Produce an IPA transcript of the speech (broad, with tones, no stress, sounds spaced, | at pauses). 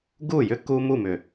ɡ u˦˨ j ʏ˦ k u˦ m u˦˨ m ʏ˨